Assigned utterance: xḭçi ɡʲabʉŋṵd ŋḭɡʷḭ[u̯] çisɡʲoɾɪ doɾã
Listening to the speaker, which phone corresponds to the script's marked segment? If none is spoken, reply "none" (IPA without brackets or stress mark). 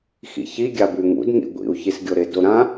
u̯